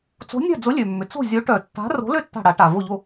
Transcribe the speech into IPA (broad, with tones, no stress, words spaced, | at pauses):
t͡so̤˨˥nʲa̤˥˩d͡zʊ˨˥ lʲø˩mːʏ˩ t͡so̤˥˩ zʲo˨˥ʈœ˨˩˦tːa̤˨˥ ro̤˨˥lø˥˩tːa̤˧˩ ɽa˨˩˦ʈa˩ vo˧˩ʎo˧˩